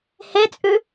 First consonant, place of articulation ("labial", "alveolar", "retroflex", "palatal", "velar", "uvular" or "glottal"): glottal